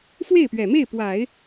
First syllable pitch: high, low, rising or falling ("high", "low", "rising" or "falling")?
falling